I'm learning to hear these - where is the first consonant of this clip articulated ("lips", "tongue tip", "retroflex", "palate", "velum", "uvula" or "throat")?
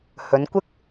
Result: throat